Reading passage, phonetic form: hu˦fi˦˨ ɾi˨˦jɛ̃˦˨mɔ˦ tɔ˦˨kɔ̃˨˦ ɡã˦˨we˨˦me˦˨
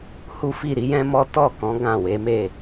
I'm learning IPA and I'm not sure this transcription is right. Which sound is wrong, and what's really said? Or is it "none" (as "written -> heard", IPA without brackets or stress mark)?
ɛ̃˦˨ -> ɛ̃˦